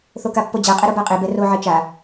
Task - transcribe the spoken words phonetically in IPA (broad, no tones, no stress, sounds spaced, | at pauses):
θ o k a pː o d͡ʑ a qʼ ɛ ɾ o b a qʼ e b ɛ r o ʕ e t͡ʃ a